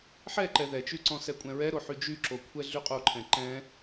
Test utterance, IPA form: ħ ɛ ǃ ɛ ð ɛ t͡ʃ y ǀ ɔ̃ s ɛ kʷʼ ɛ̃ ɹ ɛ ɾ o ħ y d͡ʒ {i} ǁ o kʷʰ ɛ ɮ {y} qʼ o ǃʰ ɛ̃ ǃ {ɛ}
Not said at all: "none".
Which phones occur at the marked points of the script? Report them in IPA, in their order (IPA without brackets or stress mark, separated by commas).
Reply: y, y, ɛ̃